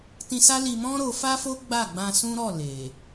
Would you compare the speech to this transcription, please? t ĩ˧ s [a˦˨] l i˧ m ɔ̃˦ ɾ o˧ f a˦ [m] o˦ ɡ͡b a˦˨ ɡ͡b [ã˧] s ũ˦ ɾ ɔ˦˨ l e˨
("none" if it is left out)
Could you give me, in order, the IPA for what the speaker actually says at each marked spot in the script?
a˦, f, ã˧

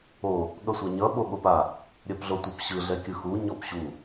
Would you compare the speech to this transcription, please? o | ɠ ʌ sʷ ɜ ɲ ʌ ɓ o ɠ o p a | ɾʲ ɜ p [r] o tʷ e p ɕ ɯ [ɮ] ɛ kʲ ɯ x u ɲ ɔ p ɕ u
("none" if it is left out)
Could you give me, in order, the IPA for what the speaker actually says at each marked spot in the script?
ɮ, ɮ

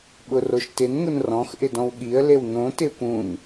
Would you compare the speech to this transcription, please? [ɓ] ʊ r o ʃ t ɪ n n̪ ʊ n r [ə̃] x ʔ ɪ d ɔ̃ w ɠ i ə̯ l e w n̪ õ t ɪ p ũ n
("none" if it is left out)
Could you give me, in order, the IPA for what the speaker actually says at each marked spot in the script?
ɓ, ɔ̃

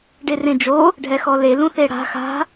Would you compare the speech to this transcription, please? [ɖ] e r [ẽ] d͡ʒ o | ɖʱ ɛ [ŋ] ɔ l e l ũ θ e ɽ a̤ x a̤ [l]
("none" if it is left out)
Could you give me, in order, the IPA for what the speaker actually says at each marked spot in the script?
ɖ, ẽ, x, none

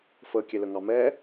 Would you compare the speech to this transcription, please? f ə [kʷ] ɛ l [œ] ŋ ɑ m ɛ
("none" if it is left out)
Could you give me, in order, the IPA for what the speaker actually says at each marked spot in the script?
kʲ, ə

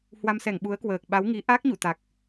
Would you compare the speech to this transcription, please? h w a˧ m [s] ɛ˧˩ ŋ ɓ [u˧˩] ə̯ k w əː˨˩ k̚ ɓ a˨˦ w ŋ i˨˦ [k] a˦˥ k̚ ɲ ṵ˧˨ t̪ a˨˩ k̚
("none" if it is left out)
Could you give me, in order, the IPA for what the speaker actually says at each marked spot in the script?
s, u˨˦, ʔ

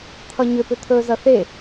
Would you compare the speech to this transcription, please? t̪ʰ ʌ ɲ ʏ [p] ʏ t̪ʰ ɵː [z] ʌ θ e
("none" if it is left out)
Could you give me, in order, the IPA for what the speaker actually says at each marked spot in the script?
p, z

